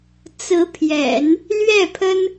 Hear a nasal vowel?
no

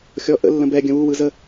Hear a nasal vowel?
yes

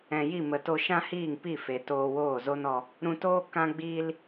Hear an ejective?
no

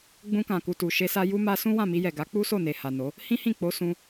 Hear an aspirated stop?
no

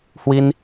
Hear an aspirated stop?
no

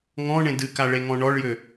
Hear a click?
no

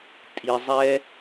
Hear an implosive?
no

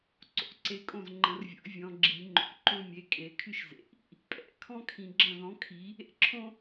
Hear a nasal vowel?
yes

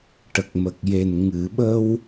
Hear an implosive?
yes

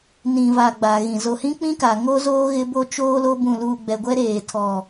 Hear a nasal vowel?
yes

